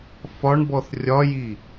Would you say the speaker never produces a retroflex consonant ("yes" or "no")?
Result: no